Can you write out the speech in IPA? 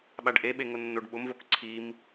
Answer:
ɓ a ɖ ʔ e ɓ e ŋ ʊ nː o ɖ ɓ ʊ m v o k ǀʰ i m

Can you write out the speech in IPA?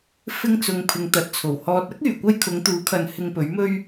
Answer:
f ɪ˧ ŋ t͡s ʊ˨ ŋ pʰ ɪ˨ ŋ t̪ ɐ˨ t̚ t͡sʰ o˨˩ w h ɔː˧ t̚ ɐ˥ k̚ yː˨˩ kʷ ɐ˧ j kʰ ʊ˨˧ ŋ t̪ uː˨˥ kʰ ɐ˨ n h ɪ˧ ŋ p ɵ˨˥ ɥ m ɵ˥ ɥ

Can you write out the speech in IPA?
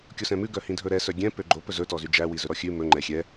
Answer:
kʲ o s ɛ̃ m ʉ ɡ œ h ĩ dʱ ɵ ɾ ɛ s œ ɡʲ ɛ̃ p ø ɡ͡ǃ o p ɵ z ɵ t ɔ z y d͡ʒ æ w i z ɵ ɾ ɔ xʲ ʉ m ɵ ŋ͡ǃ ɛ xʲ ɛ

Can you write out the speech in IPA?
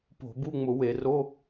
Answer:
p o̤˧˩˧ b u˧˥˧ ŋ͡m ʊ˧˩˧ w e˧˩˧ r o˧˥˧

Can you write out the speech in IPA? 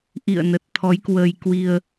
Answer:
ʔ ḭ˧˨ ə̯ n ə˨˩ t̚ t̪ʰ ɔ˨˦ j k w əː˧ j k w i˧ ə̯

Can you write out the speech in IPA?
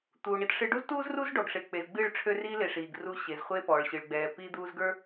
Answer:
t̪ uː˨ ɳ i˦ t ʂ ɨ˦ ɖ u˦ z t uː˦ z r u˦ z ɖ ɔ˨ ɡ ʂ e˨ k͡p e˨ z ɡ͡b ɨː˦˨ ɭ ʈ͡ʂʰ ø˦ r iː˦ l e˨ ʂ iː˨ ɡ r u˦ ɕ e˨ z χʷ e˦ p ɔː˨ ɭ ɕ ɨ˨ ɭ ɡ͡b ɛː˨ p iː˦ d̪ uː˦ z ɡ ə˞˦

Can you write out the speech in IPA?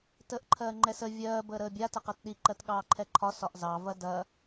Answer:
t əː ʔ ǃʰ ɜː ŋ͡ǃ ɛ s ə vʲ ɜː b əː ɾ əː bʲ a t ə q ɛ t ɗ i ǃ ɜ t ɠ ɑː ǃʰ ɛ ǃʰ ɒ s ɒ ʔ z ɑ v ɐ d ɐ

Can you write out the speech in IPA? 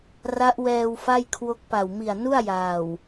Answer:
r a˦˥ ʔ w ɛː˧ w f a˥˩ j kʰ w o˦˥ k̚ p a˨˩ w m i˨˩ a̯ n u˥˩ a̯ j aː˨˩ w

